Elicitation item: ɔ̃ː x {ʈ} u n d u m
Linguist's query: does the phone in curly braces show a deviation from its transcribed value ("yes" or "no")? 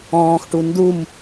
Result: no